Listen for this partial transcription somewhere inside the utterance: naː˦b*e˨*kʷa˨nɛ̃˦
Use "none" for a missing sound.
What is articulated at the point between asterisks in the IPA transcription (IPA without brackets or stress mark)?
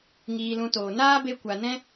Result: e˧